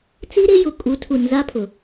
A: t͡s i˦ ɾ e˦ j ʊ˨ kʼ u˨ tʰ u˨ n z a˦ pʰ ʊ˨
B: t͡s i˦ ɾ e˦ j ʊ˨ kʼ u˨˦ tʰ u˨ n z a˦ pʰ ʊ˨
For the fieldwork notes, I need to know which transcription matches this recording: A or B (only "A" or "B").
B